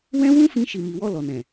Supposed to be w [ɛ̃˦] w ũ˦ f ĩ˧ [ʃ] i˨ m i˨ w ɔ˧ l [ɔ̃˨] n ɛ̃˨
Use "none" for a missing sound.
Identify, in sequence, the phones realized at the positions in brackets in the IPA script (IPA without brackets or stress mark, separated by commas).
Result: ɛ̃˦, ʃ, ɔ˨